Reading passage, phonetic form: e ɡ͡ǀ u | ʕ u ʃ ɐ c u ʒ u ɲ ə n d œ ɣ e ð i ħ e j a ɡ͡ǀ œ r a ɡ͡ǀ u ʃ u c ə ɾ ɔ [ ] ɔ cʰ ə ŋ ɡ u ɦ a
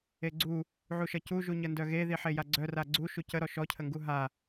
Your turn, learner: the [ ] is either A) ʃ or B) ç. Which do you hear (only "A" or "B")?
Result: A